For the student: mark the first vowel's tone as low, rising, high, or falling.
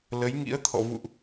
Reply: rising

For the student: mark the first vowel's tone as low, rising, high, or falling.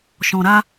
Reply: low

